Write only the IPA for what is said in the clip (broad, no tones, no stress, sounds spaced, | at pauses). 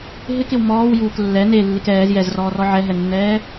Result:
ɦ ɪ k ɪ w m ɔː w j uː k lː ɛ n e lː ɪ k ɛː z j ɛ z r ɔː r ɔ ʕ ɛ ɦ ɛ nː ɛː